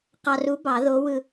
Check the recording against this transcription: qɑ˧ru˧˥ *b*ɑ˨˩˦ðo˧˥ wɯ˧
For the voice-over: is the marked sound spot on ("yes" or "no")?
yes